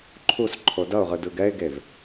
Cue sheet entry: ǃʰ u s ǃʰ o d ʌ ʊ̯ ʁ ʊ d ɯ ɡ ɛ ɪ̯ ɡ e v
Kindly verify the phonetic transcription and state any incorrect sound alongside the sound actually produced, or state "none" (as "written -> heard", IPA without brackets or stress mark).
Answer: ʊ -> ɯ